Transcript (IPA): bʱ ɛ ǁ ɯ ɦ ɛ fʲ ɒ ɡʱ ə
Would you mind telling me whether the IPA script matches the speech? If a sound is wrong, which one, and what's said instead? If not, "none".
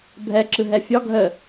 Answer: none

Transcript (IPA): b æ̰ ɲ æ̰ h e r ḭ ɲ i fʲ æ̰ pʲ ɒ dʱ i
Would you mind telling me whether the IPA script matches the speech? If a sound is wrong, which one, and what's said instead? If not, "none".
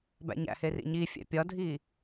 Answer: none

